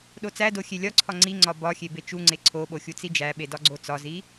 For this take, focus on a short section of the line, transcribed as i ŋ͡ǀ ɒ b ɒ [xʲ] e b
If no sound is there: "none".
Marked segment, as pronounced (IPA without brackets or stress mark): xʲ